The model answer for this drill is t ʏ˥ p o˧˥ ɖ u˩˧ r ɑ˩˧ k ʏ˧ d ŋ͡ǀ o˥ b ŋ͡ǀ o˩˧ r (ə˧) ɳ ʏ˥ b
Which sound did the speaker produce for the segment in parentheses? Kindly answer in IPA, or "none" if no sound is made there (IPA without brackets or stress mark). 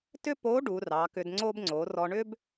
ɔ˧